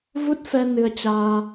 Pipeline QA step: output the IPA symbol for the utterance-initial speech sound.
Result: v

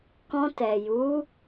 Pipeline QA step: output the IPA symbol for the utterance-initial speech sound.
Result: k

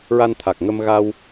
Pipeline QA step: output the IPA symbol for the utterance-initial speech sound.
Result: ɹ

